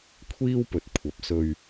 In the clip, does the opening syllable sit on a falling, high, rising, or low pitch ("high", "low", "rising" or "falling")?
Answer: high